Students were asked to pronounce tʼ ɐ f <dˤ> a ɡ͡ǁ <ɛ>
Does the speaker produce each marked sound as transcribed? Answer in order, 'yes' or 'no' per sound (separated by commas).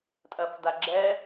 no, yes